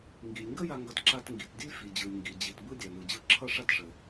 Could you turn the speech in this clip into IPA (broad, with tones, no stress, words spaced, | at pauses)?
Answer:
ŋɡi˩lʲŋɡə˥ ja˧ŋɡʌ˧t ǁa˧tŋɡi˩t dʲə˥lʲfi˩d͡ʑɯ˩lʲ ŋɡi˩ d͡ʑi˩tbɯ˥ dʲa˩ nɯ˩d͡ʑɯ˧ ǁʰʌ˥ʂa˥tʂə˩